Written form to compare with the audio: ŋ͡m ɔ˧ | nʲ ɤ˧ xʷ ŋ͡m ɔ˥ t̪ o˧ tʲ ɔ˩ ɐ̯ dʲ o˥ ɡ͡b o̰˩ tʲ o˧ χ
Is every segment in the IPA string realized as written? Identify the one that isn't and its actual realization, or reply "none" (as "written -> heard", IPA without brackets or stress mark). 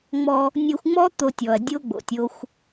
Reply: χ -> xʷ